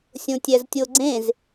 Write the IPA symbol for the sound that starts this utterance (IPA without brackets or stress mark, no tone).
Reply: sʲ